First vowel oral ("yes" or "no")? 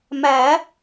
yes